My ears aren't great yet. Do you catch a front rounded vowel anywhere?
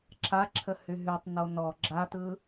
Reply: yes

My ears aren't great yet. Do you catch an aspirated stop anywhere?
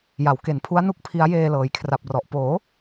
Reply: yes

